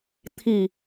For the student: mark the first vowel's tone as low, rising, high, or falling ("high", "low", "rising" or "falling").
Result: low